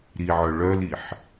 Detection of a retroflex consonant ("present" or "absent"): present